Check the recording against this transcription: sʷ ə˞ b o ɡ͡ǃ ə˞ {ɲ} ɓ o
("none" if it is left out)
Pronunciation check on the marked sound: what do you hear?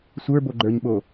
ɲ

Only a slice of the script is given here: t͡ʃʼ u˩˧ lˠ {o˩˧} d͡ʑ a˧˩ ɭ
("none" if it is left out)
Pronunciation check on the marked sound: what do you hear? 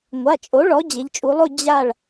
o˥˧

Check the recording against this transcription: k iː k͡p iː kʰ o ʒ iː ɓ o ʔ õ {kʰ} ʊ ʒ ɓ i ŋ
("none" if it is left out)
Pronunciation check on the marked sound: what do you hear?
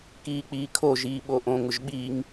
ŋ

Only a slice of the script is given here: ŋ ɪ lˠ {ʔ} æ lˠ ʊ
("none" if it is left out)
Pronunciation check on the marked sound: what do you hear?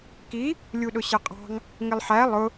ħ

